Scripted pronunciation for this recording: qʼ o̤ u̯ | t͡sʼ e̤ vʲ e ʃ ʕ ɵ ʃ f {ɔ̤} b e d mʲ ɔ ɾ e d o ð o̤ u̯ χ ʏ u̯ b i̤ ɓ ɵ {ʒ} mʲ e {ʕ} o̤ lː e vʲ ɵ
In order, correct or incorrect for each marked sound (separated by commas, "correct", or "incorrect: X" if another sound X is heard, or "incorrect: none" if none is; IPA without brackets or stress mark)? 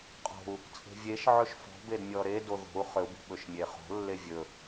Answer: correct, incorrect: ʃ, incorrect: χ